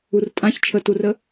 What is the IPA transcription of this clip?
u r tʼ ã ç t͡ʃʰ ə t u r ə

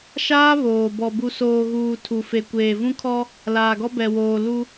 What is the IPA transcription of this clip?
ʃ aː˦ β oː˨ b ɔ˨ b u˨ s oː˨ ɣ uː˨ tʰ u˨ f e˨ kʷ eː˨ v ũ˦ kʰ ɔ˦ | l aː˨ ɡ ɔ˦ b ɛ˨ w oː˨ l u˦

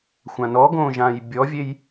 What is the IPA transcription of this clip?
xʷ ã n ɔ ɡ õː ʒ ã j bʲ ɔ vʲ e j

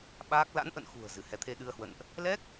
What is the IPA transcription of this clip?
ɓ aː˦˥ k̚ l a̰˧˥ n ʔ ə̰˧˨ n x ṳ˨˩ ə̯ z ɨ˧˩ h ɛ˨˦ t̪ʰ e˧ ɗ ɨ˧ ə̯ h w ə̰˧˨ n ʔ | l ɛ˦˥ k̚

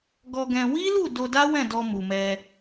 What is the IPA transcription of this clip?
ɡ ɔ˧ ɡ ɛ̃˧ w i˦ l u˦˨ d o˧ d a˦ w ɛ̃˦˨ d ɔ˧ m u˨ m ɛ˧

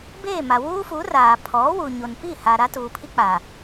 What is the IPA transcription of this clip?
b eː˦˨ m a˨ w uː˦ f u˨˦ r aː˨ pʰ ɔ˨˦ w u˨ ɲ o˨ n p i˦˨ h a˨ ɾ a˦ t uː˨ pʰ i˦ k͡p a˨

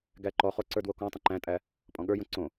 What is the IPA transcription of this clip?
ɡ æ ǃ ɔ χ o ǀ ə˞ d w o k ɔ̃ tˤ ə̃ ǃ æ̃ tʼ æ | pʼ ɔ̃ ɠ ə˞ j õ ǀ õ

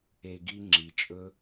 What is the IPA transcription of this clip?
e˧ ɡ i˦ ŋ͡ǁ i˨ t͡ʃʼ ɵ˦

